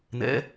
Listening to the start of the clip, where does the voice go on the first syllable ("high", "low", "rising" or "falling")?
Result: rising